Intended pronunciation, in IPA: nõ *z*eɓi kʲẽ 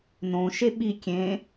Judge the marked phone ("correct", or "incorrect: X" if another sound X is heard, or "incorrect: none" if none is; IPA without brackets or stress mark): incorrect: ʃ